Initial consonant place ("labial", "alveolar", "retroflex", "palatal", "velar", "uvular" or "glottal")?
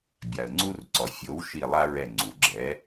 labial